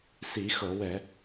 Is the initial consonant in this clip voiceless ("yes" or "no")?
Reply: yes